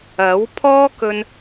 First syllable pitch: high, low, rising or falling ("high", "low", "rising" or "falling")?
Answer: rising